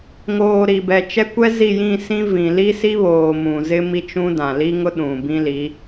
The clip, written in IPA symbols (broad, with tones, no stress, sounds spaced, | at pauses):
ŋ oː˨ ɾ i˨ b ɛ˨ t͡ʃ ɛ˦ kʷ ɛ˦ z i˦˨ j ĩ˦˨ s ĩ˦ v ĩ˨ l i˦ s i˦ β oː˨ m ũ˨ z ɪ˦ m i˦ t͡ʃ ũ˦ d ã˨ l i˦ ŋ ʊ˦ ɗ ũ˨ b ĩ˦ l i˨˦